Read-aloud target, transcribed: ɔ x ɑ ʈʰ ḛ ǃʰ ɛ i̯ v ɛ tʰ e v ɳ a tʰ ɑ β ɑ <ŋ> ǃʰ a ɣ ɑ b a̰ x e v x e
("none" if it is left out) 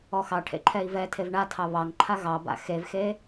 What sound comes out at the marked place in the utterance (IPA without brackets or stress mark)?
ŋ